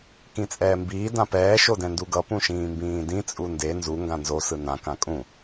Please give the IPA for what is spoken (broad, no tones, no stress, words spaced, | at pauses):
kĩt͡sʼɛːmbiː dãpɛː ʃodɛ̃nduɡʌ pũʃĩːmbĩːdĩ t͡sʼunde nzu ŋɡãnzo sɯnã kãkʼũ